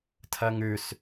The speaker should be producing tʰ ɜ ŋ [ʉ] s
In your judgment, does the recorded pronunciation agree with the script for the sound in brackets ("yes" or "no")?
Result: yes